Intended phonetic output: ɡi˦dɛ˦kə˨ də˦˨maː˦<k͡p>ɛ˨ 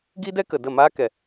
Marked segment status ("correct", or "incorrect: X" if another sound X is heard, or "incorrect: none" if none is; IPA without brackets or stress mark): incorrect: k